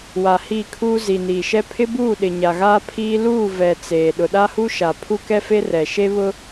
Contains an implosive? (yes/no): yes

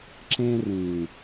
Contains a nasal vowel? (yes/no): yes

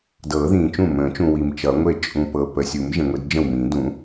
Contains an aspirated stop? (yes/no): no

